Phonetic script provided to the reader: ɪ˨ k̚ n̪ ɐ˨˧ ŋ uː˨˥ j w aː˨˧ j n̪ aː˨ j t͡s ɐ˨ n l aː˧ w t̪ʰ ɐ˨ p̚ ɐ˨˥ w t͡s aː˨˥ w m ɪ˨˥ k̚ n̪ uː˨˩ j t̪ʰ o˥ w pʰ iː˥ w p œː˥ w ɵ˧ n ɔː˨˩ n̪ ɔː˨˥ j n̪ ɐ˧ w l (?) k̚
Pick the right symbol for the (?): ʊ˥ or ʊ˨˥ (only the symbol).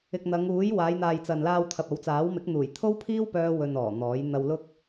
ʊ˥